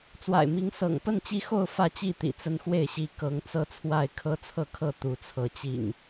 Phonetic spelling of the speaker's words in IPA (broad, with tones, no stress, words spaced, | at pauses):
t͡swa̰˨˩ɪ̯mi˨˦ŋsɤ̰˨˩ŋ pə˥˨nt͡ɕi˦xo˥˨ʊ̯ fä˥˨t͡ɕi˥˨t̪ḭ˨˩ t͡sə˦nxwe˥˨ɪ̯ɕi˦ kɤ˨˦ŋt͡sɤ˦ t͡sʰwa˥˨ɪ̯ kʰɤ˦t͡sʰɤ˥˨kʰɤ˥˨ t̪u˨˦t͡sʰɤ˨˦t͡ɕḭ˨˩ŋ